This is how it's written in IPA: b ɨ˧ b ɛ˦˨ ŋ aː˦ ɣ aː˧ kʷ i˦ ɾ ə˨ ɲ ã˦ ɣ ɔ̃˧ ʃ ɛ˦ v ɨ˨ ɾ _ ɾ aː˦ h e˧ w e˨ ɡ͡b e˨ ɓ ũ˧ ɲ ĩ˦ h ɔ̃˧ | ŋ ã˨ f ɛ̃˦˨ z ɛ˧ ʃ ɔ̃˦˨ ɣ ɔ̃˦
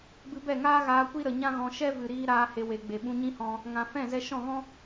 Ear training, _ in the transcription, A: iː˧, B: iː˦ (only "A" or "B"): A